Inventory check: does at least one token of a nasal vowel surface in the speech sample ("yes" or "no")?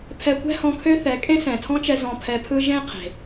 yes